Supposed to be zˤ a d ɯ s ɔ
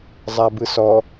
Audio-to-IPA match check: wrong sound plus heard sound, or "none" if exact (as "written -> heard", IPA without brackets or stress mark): d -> b